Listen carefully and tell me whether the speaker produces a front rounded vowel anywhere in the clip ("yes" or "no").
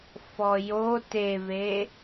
no